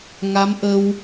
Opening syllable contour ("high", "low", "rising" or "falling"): rising